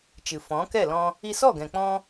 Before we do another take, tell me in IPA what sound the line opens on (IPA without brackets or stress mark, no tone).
t͡ʃ